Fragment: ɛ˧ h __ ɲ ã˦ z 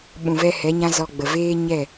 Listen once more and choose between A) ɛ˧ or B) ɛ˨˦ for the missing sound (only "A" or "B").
B